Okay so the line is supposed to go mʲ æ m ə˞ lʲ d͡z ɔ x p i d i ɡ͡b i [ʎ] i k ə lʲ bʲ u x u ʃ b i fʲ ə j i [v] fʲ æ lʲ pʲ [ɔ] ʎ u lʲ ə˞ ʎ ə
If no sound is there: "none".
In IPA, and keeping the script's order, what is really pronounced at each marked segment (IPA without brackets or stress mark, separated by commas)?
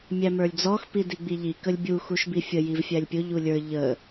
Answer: ʎ, v, ʊ